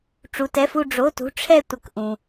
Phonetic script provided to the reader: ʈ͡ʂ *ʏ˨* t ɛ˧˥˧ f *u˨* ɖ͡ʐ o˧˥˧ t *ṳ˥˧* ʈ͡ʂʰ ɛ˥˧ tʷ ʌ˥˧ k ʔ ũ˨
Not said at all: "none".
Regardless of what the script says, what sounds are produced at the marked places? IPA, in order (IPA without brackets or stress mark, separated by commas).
u˨, u˥˧, ṳ˧˥˧